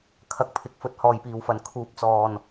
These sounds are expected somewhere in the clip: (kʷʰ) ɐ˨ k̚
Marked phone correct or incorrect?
incorrect